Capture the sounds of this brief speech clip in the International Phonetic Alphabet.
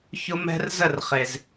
çʊ˦mɛ̤˦rzə˥˨rχe˩z

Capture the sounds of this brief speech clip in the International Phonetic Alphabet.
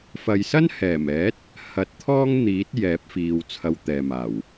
fɐ˨jsɐ˥n hɛː˨˩mɛː˨˥t̚ | hɐ˨˥t̚t̪ʰɔː˥ŋn̪iː˨˥t̚ jɛː˨˥p̚fiː˨w t͡sʰɐ˧wt̪ɛː˨ maː˨˩w

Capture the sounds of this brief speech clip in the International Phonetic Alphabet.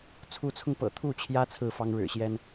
t͡sʰu˧˥t͡sʰʊ˧ŋpɤ̰˨˩ t̪ʰu˥˩t͡ɕʰjä˥ t͡sʰɹ̩˥˩fɑ˥ŋɻɻ̩˨˩ɕjɛ˥n

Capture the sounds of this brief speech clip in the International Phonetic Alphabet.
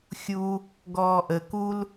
xʲu | ɡɔːʔə kul

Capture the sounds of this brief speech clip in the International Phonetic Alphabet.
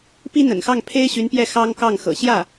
pi˥n̪ə̰˨˩nxɑ˥˩ŋpʰe˥ɪ̯ ɕy˧˥npjɛ˥˩ xɑ˥ŋkɑ˥˩ŋxɤ̰˨˩ ɕjä˥˩

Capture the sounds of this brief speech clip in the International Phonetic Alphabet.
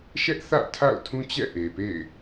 ʃɛ˦ʔθä̰˦˨ tʰa̰˦˨ʊ̯tʰũ˦t͡ɕɛ̰˦˨ ʔe˨pḛ˦˨ɪ̯

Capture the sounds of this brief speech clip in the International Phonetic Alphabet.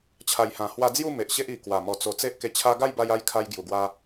t͡ɕʰa˨˩jhã˨˩hwa˧d͡zju˥˧ me˨ʔ ɕe˦ʔ i˨˩kwa˨˩ mɔ˨˩t͡so˨˩ t͡se˦ʔke˧t͡ɕʰa˦ ɡa˥˧jba˧ja˧j kʰa˧jɡju˨˩ɡwa˧

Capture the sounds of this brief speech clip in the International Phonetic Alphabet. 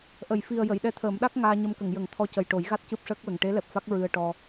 ʔə˨˩˨jfi˨˩ə̯ jə˨˩˨jɗɛ˧˥t̪ʰəː˨˩˦mɗa˦˥k̚ ŋaː˧ɲə˧mkə˨˩˨ŋjə˨˩˦ŋ t̪ʰɔ˧cə˨˩jʈo˨˩˦jɣa˦˥t̚ cɨ˦˥p̚ʂəː˦˥k̚wə˨˩ŋ ʈe˧˥lɛ˨˩p̚fa˦˥k̚ ɹɨ˧ə̯ ʈɔ˧

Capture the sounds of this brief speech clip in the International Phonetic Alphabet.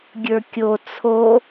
ɡʲə˞kʲo t͡sʰo

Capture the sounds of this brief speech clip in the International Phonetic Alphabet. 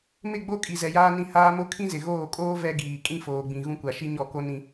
mɪ˦˨ɡ͡bo˦ kʼi˨zɛ˨jaː˦nĩ˦˨ haː˦mo˦ kʰĩ˦zɪ˨ɣoː˦˨kʼoː˦ vɛ˦ɡiː˨ kʼĩ˦foː˨ɡ͡bĩ˨ ɣũ˦kʷa˨ʃi˦ ɲɔ˦˨ko˦ nĩ˦

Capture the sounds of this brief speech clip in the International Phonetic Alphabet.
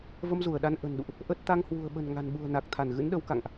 və˧mzu˧˩ə̯ɗa˨˦n ʔə̤˨˩nɗṵ˧˨ʔ | ʔə˦˥t̚ t̪a˧ŋhwṳ˨˩ə̯ɓə̤˨˩n ŋa̤˨˩nɓṳ˨˩ə̯na˨˩k̚ t̪ʰa˧˩nɣɨ̰˧˥nɗə˨˦wka̰˧˨ŋʔ

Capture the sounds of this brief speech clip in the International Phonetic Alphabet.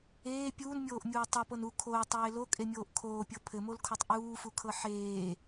eː pʲuːnmʲoːʔmʲuː tˤɤpɤn u kʰoːtˤeː lokʼemʲoːʔ kʰoːpʲɤ pʰɘmolkʰotˤ ʔuːfukʰɤ ħeː

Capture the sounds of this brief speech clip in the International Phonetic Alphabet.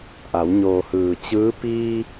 ʔa˩˧w ɲoː˩hɯː˩ t͡ɕɯː˧˥ piː˧

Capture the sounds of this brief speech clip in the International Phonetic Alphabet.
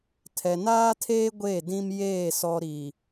tʰɛ˨naː˦tʰeː˦ ɡʷe˦˨dĩ˦mjeː˦˨ sɔ˨ɾi˨

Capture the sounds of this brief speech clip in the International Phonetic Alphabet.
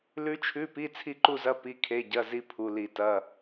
lʉ˦˥t͡ʃʰʉ˧˥˧pi˧˥˧ t͡sʰi˥˧ǃu˥˧zɐ˧˥˧ pi˩˧˩kʰe˩˧˩ɟɐ˩˧˩ zi˦˥pʰu˩˧˩ li˧˩˧tɐ˩˧˩

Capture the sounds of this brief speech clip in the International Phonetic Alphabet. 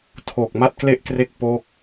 tʰoː˨˩k̚ma˥˩t̚kle˥˩ʔkre˦˥k̚ po˦˥k̚

